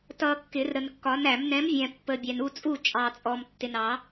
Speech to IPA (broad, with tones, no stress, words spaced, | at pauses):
tʌ˨ kːɪ˨˩˦rɾə˨nkːɒ˨˥n æ˨˩˦m nɛ̃˨˥mvʲɛ̃˨ pːə˨bʲæ˨n u˥˨t͡sʼu˥˨ t͡ʃʼɑ˨t͡sʼɔ˨m tːɪ˨nɑ˨˩˦